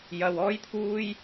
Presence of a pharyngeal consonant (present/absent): absent